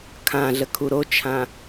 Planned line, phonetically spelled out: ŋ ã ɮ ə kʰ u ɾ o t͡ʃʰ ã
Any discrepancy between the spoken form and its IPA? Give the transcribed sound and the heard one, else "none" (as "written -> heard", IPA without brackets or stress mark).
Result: ŋ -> kʰ